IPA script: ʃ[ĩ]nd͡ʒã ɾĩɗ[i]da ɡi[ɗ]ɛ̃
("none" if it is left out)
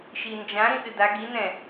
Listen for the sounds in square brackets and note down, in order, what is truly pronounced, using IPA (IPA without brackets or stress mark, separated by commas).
i, ɨ, n